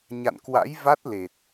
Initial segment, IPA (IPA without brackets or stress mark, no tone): ɲ